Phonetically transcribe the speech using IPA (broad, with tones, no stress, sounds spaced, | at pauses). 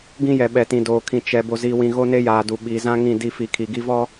ɡ ĩ˦ j ɛ˨ ɓ ɛ˨ t ĩ˨ d oː˨ kʰ ĩ˨ t͡ʃ ɛ˨ b o˨ z iː˨ w ĩ˨ ɣ o˦ n e˦ j aː˨ d u˨ ɓ iː˨ z ã˦ ŋ ĩ˦˨ d i˦˨ f i˨˦ kʰ i˨ ɡ i˦ v ɔ˦